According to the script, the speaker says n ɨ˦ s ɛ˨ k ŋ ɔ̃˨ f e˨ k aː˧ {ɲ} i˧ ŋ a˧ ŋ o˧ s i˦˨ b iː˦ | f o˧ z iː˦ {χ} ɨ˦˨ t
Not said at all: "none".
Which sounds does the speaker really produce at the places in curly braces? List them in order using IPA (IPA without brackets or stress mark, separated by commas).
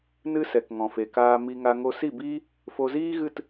m, ɣ